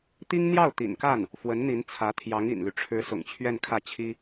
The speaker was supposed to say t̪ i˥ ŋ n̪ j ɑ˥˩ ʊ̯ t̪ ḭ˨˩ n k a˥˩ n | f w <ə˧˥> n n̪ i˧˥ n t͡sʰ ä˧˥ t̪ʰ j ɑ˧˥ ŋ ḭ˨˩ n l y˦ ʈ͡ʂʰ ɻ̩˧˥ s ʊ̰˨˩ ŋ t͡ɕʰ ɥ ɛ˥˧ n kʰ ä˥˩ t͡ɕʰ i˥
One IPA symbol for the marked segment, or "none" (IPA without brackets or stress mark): ə˧˥